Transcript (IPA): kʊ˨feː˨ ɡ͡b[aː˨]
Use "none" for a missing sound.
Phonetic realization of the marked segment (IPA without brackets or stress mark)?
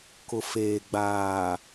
aː˨